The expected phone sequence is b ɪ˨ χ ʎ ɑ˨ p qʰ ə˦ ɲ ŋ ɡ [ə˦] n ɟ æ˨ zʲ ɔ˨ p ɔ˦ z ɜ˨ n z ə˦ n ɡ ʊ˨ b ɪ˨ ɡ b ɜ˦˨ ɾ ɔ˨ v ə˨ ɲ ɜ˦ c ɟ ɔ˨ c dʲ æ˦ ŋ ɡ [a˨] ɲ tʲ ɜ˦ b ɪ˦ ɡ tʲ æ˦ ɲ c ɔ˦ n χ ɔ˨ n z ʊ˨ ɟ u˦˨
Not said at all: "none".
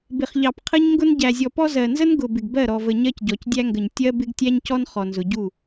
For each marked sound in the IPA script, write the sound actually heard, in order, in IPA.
ʊ˦, ə˨

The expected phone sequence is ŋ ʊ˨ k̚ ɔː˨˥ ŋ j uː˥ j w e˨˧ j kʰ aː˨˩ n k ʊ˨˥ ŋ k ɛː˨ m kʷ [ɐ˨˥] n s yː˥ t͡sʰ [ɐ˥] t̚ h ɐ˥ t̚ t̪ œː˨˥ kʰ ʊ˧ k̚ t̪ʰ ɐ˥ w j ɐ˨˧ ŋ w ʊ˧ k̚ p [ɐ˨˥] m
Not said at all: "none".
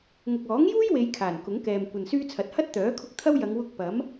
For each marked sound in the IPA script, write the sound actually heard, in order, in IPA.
ɐ˨, ɐ˨˥, ɐ˨˥

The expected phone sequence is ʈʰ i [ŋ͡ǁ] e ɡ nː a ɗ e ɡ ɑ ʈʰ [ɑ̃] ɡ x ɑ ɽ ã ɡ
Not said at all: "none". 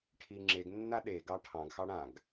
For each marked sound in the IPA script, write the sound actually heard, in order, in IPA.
ŋ͡ǁ, ɑ̃

